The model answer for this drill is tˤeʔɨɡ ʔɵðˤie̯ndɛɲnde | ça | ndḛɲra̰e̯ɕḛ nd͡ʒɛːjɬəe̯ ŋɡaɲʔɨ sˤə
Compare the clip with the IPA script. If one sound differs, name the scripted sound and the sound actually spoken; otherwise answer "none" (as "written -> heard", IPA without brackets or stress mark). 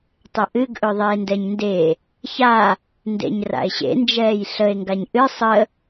none